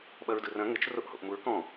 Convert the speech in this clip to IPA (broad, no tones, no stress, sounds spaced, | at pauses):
ɓ ɐ ɹ d ɯ r ɐ̃ ŋ ɘ t͡ʃ r o ʔ h o̰ ʔ m u ɹ k ɔ̃